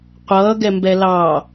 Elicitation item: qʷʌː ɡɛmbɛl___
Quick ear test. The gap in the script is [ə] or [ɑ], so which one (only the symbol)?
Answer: ɑ